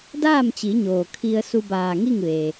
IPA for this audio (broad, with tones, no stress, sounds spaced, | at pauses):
d aː˥˨ m t͡ɕ i˩˧ ɲ oː˩ kʰ i˧ ə̯ s u˧ b aː˧˩ ŋ i˥˨ ŋ ʋ eː˩